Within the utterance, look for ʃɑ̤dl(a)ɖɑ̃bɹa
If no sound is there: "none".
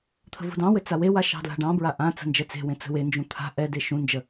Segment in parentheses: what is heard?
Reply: a̤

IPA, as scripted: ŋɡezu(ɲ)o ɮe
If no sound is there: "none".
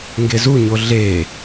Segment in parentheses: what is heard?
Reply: ɲ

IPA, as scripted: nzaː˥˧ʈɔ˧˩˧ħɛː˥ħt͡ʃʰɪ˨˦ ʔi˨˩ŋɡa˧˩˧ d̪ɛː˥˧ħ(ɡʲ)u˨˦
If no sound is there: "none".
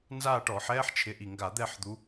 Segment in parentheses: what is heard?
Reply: d̪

